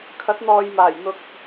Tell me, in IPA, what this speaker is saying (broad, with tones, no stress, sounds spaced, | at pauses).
kʰ ɐ˨˥ t̚ n̪ ɔː˨ j m aː˨˩ j n̪ ʊ˨ k̚